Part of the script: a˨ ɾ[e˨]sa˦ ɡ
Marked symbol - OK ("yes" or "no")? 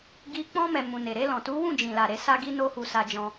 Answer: no